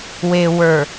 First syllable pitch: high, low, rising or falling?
low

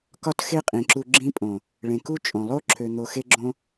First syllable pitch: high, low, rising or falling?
high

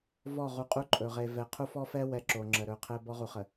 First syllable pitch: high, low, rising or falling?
falling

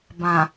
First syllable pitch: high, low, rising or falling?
low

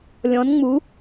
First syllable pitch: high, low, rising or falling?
rising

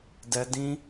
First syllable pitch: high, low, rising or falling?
high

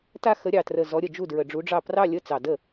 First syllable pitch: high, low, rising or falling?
falling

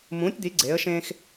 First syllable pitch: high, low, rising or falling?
rising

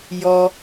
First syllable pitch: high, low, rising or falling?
low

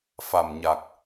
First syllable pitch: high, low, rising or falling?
low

